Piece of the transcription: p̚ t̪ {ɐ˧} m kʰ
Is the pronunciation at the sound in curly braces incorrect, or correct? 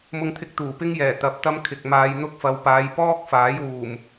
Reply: incorrect